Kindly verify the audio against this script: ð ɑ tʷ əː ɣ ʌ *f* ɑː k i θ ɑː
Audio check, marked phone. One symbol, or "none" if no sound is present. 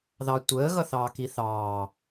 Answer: θ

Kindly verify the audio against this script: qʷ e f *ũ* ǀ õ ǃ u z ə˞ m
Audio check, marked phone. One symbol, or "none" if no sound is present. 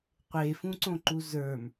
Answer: ũ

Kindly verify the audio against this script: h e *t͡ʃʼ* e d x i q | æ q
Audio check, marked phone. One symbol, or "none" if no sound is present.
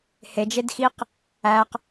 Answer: d͡ʒ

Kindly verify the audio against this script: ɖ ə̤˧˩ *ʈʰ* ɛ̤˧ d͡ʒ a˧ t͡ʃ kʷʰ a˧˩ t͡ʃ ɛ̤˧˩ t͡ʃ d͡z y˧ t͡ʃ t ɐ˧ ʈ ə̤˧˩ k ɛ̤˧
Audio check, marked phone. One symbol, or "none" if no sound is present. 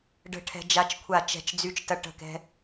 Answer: ʈʰ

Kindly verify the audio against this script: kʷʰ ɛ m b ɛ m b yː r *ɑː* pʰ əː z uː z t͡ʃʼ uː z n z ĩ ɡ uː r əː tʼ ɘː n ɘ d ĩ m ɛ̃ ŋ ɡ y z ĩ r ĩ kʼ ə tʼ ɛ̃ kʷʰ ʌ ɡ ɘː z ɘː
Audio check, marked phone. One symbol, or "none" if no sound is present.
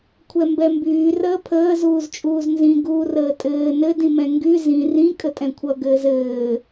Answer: əː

